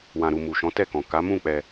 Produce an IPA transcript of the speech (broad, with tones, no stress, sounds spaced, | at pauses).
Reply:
w ã˨ ɾ u˨ m u˨ ʃ ɔ̃˨˦ t ɛ˦˨ k ɔ̃˨ k a˨˦ m ũ˦˨ k͡p ɛ˧